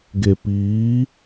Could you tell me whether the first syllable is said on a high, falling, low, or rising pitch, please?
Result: low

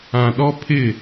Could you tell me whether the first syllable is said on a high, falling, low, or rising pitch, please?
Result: low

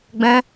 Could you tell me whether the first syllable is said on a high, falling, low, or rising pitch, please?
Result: high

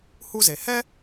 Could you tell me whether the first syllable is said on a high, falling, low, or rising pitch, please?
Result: high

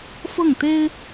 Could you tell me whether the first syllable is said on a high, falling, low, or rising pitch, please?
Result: falling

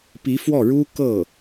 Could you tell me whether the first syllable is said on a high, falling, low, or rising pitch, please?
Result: rising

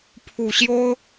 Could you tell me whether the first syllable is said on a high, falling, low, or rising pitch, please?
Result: low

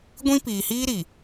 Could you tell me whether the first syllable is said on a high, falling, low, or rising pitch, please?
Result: high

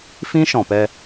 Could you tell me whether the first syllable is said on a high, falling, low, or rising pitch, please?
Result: high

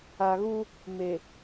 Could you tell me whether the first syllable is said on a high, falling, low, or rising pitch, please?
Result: low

